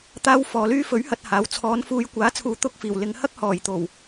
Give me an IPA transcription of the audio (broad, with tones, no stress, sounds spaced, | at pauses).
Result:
t̪ aː˧ w f ɔː˨˧ l yː˥ f ɵ˨˥ ɥ h ɐ˨ t̚ h aː˨˥ w t͡sʰ ɔː˨˧ n f uː˨˧ j kʷ aː˨˥ t͡sʰ uː˨˧ t̪ ʊ˧ k̚ f iː˨˩ w l ɪ˨˧ ŋ h ɐ˥ k̚ h ɔː˨˩ j t̪ o˨˩ w